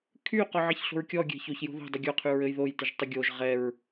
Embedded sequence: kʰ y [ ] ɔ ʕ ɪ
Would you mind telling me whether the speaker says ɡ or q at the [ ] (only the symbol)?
q